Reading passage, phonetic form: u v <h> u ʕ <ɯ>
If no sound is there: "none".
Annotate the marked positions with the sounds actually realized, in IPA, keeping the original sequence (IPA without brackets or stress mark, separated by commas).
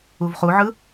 χ, ɯ